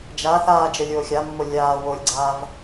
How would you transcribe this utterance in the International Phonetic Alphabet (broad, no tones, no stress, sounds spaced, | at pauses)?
d͡ʒ a θ aː d͡ʒ ə lʲ oː xʲ a mː o lʲ aː w o lʲ ɡ͡ǀ aː v